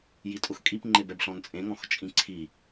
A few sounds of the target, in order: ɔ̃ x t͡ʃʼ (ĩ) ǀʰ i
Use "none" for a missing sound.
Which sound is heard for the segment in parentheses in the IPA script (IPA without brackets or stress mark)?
ĩ